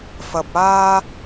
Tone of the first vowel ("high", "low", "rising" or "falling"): low